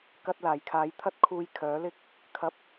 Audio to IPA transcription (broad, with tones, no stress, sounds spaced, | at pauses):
k ɐ˧ t̚ l aː˨˩ j kʰ aː˨˥ j t̪ʰ ɐ˥ t̚ kʰ uː˧ j kʰ œː˨˥ l ɪ˥ k̚ | kʰ ɐ˧ p̚